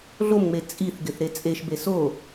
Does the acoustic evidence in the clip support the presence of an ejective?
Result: yes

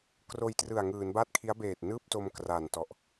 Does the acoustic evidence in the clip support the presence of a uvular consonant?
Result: no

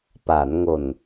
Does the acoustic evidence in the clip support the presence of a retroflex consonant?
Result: no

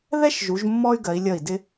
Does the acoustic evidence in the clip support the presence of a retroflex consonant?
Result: no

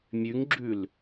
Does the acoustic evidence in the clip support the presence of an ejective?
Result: no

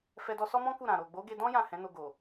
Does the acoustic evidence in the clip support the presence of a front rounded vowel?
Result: no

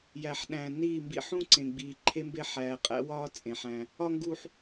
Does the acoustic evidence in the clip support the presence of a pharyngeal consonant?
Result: yes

